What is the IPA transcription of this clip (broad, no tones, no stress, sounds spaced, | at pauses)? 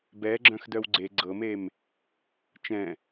b ɛ ɡ͡ǁ œ̃ x d œ w ɡ͡ǀ e ɡ͡ǀ ɤ m e m | t͡ʃ ɛ̃